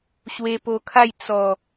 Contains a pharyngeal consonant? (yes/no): no